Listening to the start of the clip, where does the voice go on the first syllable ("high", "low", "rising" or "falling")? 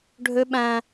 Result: high